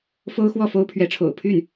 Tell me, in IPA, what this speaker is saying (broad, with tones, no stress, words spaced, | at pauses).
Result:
fo˥ʊ̯xwɔ˥˩fo˥ʊ̯pʰɥɛ˧˥ ʈ͡ʂʰo̰˨˩ʊ̯ pʰy˥˩n